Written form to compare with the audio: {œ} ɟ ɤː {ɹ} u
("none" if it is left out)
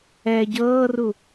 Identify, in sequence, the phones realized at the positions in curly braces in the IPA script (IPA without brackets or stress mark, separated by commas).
ɛ, r